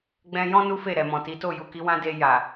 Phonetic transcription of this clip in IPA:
ɡ͡b ɛ̃˧ j ɔ̃˦ n u˦ f e˦˨ ɾ ɛ˨ m ɔ̃˨ t i˨˦ t o˦˨ j u˨ k i˨˦ w ã˦ d e˧ j a˨

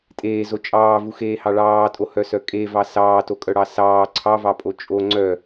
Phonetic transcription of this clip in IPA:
tʼ eː z o t͡ʃʼ ɑː v u x eː h ɑ ɭ ɑː tʼ o h œ s œ kʼ e v ɑ s ɑː t o kʼ œ ɽ ɑ s ɑː ǀʰ ɑ v ɑ pʼ o t͡ʃʼ o ŋ͡ǀ œ

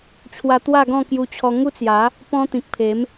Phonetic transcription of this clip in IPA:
t͡ɕʰ w a˧ t̪ w a˥˧ ɡ ɔ̃˥˧ k j u˧ t͡ɕʰ ɔ˧ ŋ u˦ t͡s j a˨˦ | p ɔ̃˧ t̪ ĩ˨ k̚ pʰ e˨˦ m

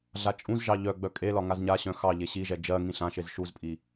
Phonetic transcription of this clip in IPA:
ɮ a t͡ʃʼ ũ z ʒ ɑ ʎ œ ɡ͡b œ kʼ e l ɒ ŋ a z ɲ a ɕ œ̃ x ɑ ʎ e ɕ i ʒ ɛ d͡ʒ ɜ ŋ ĩ ɬ ã ʃ e z ʃ u z pʼ i

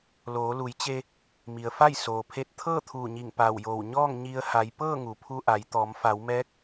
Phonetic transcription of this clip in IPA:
l oː˩˧ l u˩˧ j t͡ɕ e˧ | m i˩ ə̯ f a˥˨ j s oː˩ pʰ e˧ t̚ t̪ʰ ɤː˥˨ t̪ʰ uː˧˩ ɲ i˧˩ ŋ p aː˧˩ w j oː˧˩ w ɲ ɔː˥˨ ŋ ɲ i˧ ə̯ h a˩˧ j p ɤː˥˨ ŋ u˩ pʰ u˧ ʔ a˩˧ j t̪ ɔː˩˧ m f a˩˧ w m ɛː˧˥ k̚

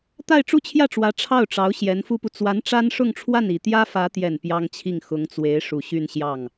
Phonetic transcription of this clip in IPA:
t̪ a˥˧ ɪ̯ ʈ͡ʂ u˥˧ t͡ɕʰ j ä˥˩ ʈ͡ʂ w ä˧˥ ʈ͡ʂʰ ɑ˥˩ ʊ̯ ʈ͡ʂ ɑ˧˥ ʊ̯ ɕ j ɛ˧˥ n f u˥ p u˨ t͡s w a˧˥ n ʈ͡ʂ a˥ n ʂ ʊ˥˧ ŋ ʈ͡ʂʰ w a˥˩ n i˨˩ t̪ j ä˥ f ä˧˥ t̪ j ɛ˨˩ n p j ɑ˥ ŋ t͡ɕʰ i˥˩ ŋ x ʊ˧˥ ŋ t͡s w e˧˥ ɪ̯ ʂ u˨˩ ɕ y˥˧ n ɕ j ɑ˥˩ ŋ

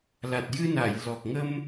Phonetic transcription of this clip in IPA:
l a˨˩ t̚ j ɨ˧ n a˨˩˨ j l ɔ˨˩ k̚ ŋ ə˧ m

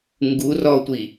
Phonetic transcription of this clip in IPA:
ŋ ɡ u r ɔ tʷ i

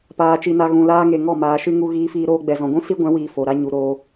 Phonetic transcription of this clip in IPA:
p aː˦ t͡ʃ i˦ n a˦ ɣ ũ˧ l aː˦ ŋ e˧ ŋ ɔ˦˨ m aː˧ ʃ ɨ˦ ŋ u˦ ɣ iː˦ f iː˦ ɾ oː˦ ɡ͡b ɛ˨ z ɔ̃˨ ɡʷ ũ˦ s i˦ ɡʷ ɛ̃˨˦ w iː˨ f o˨ ɾ a˦ ɲ u˧ ɾ o˧

